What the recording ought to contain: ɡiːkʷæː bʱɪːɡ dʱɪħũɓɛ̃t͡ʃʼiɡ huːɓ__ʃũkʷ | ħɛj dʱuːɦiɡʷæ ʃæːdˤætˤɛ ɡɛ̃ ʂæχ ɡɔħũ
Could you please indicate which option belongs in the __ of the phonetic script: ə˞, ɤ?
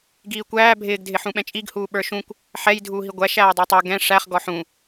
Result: ə˞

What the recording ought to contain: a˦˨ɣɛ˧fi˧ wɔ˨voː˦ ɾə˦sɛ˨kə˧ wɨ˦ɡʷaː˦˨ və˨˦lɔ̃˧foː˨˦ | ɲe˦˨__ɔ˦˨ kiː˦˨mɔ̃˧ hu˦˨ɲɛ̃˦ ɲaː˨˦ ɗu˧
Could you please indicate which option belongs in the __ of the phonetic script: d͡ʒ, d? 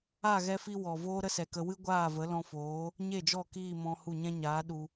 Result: d͡ʒ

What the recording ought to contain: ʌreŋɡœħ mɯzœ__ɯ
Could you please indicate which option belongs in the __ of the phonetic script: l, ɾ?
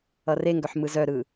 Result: ɾ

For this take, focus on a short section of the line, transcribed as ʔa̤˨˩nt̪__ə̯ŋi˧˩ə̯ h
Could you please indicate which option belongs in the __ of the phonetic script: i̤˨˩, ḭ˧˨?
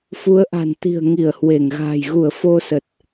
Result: i̤˨˩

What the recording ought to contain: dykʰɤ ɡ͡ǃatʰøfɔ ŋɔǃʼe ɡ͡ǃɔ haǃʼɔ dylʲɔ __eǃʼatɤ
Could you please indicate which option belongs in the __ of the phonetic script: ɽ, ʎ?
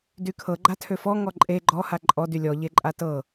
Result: ʎ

